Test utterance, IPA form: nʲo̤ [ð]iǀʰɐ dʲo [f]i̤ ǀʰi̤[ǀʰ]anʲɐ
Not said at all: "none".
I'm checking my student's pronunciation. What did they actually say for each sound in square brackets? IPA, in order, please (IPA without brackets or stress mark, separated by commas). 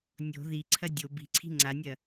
ð, b, ŋ͡ǀ